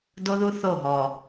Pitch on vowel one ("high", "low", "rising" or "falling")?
high